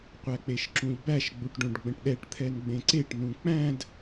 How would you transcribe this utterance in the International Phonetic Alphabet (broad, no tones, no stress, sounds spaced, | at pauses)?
qʷ æ k͡p e ʃ ǁ ũ ʎ b æ ʃ ɡ͡b u ʈ ɖ õ ɖ ɡ͡b ə̃ ʈ ɗ ɛ ʈ t̪ʰ ɛ n ɡ͡b ẽ ǀ e ʈ n ũ k͡p æ̃ d